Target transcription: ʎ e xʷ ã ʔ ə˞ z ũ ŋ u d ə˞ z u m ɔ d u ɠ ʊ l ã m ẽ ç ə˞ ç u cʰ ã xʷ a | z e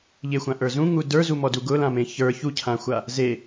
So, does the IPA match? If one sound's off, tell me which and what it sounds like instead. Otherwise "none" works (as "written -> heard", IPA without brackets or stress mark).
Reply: ɠ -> ɡ